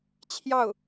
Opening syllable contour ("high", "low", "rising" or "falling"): falling